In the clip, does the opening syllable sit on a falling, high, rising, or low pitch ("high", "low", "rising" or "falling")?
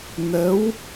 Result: rising